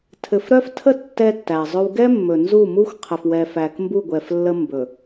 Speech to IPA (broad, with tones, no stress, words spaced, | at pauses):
tʰɘ˨fɾœ˦ftʰə˦ tːɛ˦tːæ˨zˤɵ˦w ɡɛ˦mːɵ˨nzu˦˨mu˦xʷ qʰɘ˨fwɛ˨fæ˨k mbu˦˨ɡʷɛ˨flːə˦ mbɵ˨